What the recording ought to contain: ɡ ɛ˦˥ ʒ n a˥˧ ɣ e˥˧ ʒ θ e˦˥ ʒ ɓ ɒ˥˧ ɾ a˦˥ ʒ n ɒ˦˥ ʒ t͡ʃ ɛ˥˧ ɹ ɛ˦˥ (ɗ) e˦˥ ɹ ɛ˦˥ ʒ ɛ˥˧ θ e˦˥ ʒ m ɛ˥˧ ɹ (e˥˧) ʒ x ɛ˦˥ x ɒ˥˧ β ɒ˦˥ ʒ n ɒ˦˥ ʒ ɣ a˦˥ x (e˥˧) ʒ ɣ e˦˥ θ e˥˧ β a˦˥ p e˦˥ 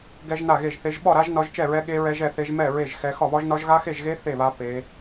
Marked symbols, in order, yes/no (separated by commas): no, yes, yes